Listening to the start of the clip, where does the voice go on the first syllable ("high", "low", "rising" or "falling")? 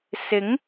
rising